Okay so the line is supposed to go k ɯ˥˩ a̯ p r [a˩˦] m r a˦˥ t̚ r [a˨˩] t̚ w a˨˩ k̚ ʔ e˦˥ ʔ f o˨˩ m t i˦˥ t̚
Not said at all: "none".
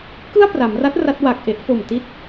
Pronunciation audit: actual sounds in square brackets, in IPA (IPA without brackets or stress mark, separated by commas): a˩˦, a˦˥